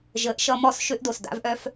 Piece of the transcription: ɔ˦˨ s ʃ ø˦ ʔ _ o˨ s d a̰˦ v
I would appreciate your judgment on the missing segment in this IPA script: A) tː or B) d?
B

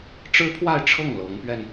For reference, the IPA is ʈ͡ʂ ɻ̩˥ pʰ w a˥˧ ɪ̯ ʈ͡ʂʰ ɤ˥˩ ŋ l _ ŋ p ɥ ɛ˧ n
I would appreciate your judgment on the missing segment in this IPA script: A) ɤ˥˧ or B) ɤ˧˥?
B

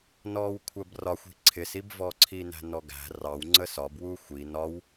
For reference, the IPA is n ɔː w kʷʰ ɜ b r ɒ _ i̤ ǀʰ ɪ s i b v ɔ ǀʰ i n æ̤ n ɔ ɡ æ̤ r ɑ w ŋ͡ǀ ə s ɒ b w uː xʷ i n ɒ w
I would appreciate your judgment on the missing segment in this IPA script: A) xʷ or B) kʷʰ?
A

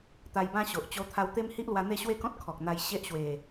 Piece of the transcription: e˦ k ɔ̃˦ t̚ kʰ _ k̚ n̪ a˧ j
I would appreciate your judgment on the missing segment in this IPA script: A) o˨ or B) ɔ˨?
B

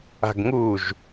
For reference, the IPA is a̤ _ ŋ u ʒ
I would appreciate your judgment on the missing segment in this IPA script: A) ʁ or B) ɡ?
B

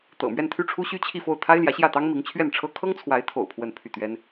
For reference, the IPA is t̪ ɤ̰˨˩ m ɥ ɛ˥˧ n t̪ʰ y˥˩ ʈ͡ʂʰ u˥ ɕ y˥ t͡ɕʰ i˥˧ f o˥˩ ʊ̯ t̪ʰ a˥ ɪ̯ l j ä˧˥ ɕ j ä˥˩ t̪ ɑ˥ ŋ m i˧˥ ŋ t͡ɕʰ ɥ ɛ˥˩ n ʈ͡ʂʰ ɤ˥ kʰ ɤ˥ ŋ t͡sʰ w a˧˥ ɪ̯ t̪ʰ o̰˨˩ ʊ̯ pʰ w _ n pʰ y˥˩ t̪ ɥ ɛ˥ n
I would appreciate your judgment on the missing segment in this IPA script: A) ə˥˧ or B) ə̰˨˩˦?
A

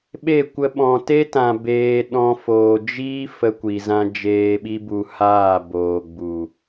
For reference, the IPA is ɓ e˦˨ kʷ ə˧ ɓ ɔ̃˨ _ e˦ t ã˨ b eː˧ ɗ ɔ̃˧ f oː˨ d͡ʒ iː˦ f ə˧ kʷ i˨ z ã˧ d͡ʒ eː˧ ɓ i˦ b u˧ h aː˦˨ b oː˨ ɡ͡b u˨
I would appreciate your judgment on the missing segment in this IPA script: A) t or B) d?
A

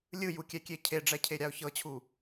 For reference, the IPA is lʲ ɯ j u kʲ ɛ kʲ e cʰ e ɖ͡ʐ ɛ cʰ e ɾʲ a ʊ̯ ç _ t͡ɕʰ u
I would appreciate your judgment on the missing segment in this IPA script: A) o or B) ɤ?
B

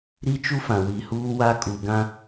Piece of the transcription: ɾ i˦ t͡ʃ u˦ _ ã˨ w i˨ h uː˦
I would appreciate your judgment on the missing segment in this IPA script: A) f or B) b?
A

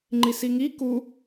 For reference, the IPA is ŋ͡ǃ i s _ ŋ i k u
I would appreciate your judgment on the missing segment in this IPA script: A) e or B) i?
B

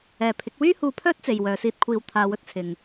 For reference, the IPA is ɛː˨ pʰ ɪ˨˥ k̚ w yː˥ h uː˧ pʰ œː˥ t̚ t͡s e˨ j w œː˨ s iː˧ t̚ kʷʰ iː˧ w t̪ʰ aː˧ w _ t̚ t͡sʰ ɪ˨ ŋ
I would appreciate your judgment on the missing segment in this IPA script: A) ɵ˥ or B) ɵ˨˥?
A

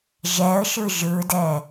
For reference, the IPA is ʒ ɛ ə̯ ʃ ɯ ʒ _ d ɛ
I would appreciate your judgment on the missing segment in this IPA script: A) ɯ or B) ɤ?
A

